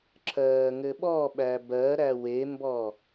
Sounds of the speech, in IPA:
ǁ ɜː ŋ ɘ ɓ ɔ ɓ æ b ɜ ɾ æ w e m b ɔ

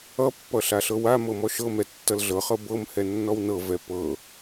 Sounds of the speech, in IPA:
ʌ pː ʌ ɬ a ɬ ɤ w a m ɤ m ɔ ʃ ɤ m ɛ tː ʌ l ɮ ɤ χ ɤ b ɤ m h ɛ nː ɔ w n ɤ v ɛ p ɤ

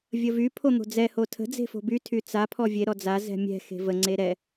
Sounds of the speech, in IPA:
vʲ ə v y pʰ o n̪ o̤ d͡z ɛ h o tʰ ə̤ d͡z e̤ f o̤ b y tʰ y t͡s a pʰ ɔ vʲ e ɾ ɔ d͡z a z ɛ̤ mʲ ɛ̤ x e̤ v ə ŋ͡ǀ e ɾ ɛ

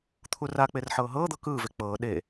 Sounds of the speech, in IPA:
t̪ʰ u r a k͡p e r ħ ɤː ɦ ɤː d̪ ɤ k ɯː v e k͡p ɤː ɗ e

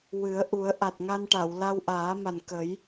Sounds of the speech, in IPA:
w ɨ˨˩˦ ə̯ ʔ u˨˩˦ ə̯ ʔ a˨˩ t̚ ŋ a˧ n ʈ a˨˩˨ w l a˧ w ʔ aː˨˩˦ m a˨˩ n k ə˨˩˦ j

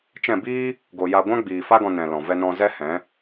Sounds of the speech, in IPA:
t͡ʃ ɛ̃˦˨ b iː˦ | ɡ o˨ j a˧ ɡʷ ã˦ ɡ͡b iː˨ f a˦ ɡ ɔ̃˧ n ɛ̃˨ l ɔ̃˨ v ɛ˧ n ɔ̃˧ z ɛ˦ h ɛ̃˨˦

